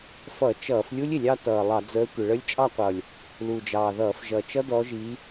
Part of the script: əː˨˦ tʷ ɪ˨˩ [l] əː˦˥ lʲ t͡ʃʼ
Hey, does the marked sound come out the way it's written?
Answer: no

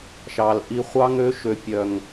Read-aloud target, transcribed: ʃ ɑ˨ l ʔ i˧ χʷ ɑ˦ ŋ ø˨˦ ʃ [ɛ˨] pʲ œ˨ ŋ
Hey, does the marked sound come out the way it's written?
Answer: no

